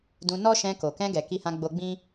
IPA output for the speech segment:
d ũ˧ n ɔ˦ ʃ ɛ̃˧ k o˨ k ɛ̃˧ ɡ ɛ˨ k i˧ h ã˧ ɡ͡b o˧ ɡ͡b ĩ˦

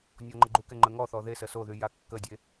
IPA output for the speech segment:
nʲ ɔ ŋ͡ǃ ə ɡ͡ǃ u k ɛ ŋ͡ǃ ə ŋ ɔ θ ɔ ð e s ə s o ð y j a kː ə dʲ e

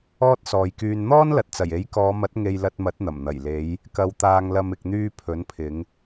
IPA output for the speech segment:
ɔː˥ t̚ s ɔː˨ j k yː˧ n n̪ ɔː˥ n l ɐ˨ t̚ t͡s ɐ˨˩ j e˨˥ j k ɔː˨˧ m ɐ˨˥ t̚ ŋ e˧ j l ɐ˧ t̚ m ɐ˨˥ t̚ n̪ ɐ˨˩ m n̪ ɐ˨˩ j l e˨˧ j | k ɐ˧ w t̪ aː˧ ŋ l ɐ˧ m ɪ˨ k̚ n̪ yː˧ pʰ ɵ˨˥ n pʰ ɪ˨˧ ŋ

